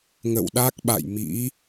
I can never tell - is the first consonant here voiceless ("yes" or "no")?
no